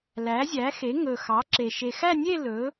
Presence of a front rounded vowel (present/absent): absent